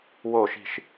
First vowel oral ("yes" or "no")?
yes